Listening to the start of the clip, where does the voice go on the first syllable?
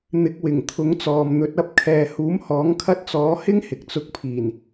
rising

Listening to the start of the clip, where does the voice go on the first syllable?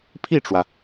falling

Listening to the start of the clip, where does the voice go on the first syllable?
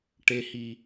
low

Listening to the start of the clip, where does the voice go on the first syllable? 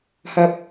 low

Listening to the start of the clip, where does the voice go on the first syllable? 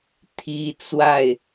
high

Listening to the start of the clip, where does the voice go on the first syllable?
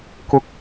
low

